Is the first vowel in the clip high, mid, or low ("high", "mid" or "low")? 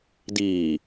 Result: high